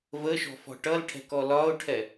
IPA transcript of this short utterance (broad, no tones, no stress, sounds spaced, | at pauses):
v ə ʃ ɔ̤ f ɔ̤ ʈ ʌ l ʈʰ ɛ̤ k ɔ l ɒ ʊ̯ ʈʰ ɛ